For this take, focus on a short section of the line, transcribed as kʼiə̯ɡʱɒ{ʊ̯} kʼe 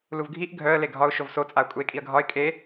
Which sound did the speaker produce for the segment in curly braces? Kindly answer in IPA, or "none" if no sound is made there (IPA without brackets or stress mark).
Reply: ɪ̯